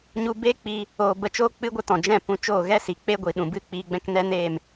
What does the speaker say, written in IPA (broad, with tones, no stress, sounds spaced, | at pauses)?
ɲ u˦ b eː˦ k͡p i˧ | oː˧ b ə˧ t͡ʃ oː˦ k͡p ɨ˦ ɡʷ ə˦ t ɔ̃˨ d͡ʒ ɛ̃˦˨ p ũ˧ t͡ʃ oː˦˨ ɣ ɛ˦ s i˨ k͡p e˦ ɡʷ i˨ ɗ ũ˨ b ɨ˦˨ k͡p iː˧ ɡ͡b ɛ̃˦ k n ɛ˦ n eː˦˨ m